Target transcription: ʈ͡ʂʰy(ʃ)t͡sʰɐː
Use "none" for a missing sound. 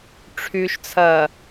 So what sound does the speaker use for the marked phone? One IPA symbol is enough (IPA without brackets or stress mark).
ʃ